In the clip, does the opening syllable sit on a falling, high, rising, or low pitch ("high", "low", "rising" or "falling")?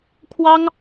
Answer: high